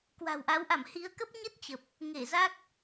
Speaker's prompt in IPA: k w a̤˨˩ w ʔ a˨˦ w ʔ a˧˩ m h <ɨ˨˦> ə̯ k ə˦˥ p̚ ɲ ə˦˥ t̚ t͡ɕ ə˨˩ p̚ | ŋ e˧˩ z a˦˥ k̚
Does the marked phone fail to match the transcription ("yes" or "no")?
yes